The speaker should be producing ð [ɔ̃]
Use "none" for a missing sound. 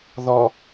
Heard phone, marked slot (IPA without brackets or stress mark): ɔ